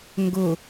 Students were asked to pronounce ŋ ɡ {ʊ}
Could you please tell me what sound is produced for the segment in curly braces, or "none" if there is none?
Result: ʊ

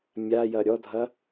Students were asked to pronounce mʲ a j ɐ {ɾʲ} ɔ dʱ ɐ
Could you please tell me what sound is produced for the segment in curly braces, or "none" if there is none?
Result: ɾʲ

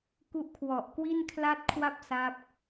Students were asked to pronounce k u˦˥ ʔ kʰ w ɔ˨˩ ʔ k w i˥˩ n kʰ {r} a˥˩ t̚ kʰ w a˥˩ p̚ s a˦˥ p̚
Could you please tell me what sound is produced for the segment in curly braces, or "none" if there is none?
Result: l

